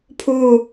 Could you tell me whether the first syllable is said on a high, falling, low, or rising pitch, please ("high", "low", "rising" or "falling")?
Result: falling